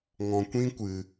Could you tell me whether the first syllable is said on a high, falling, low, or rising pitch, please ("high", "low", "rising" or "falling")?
low